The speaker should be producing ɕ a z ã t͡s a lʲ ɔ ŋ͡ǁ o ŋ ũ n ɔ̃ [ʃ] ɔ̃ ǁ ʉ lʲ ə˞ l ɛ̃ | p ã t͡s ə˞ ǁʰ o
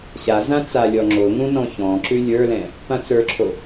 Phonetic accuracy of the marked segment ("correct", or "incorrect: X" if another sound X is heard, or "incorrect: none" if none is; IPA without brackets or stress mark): incorrect: ç